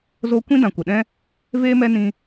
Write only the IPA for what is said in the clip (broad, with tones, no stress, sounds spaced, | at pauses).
z o˦ kʷ ĩ˦ d ã˨ kʷ ə˨ ɗ ɛ̃˦ | v eː˦ m ɛ˦ n ĩ˦